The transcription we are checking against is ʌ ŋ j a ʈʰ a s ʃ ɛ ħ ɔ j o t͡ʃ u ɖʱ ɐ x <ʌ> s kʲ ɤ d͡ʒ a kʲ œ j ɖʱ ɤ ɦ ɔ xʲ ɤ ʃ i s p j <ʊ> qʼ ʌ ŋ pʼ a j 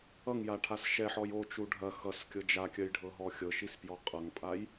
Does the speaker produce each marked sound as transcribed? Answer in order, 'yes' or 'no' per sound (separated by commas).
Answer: yes, no